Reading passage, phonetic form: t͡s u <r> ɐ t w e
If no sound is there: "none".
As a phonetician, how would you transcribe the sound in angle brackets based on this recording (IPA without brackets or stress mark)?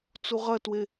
ʁ